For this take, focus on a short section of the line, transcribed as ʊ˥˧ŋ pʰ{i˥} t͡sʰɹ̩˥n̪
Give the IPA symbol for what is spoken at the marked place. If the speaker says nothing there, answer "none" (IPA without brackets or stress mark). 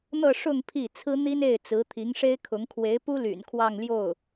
i˥˩